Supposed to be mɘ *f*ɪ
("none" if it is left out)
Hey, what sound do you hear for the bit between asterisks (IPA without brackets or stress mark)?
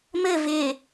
v